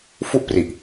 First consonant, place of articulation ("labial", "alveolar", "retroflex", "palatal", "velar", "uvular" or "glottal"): labial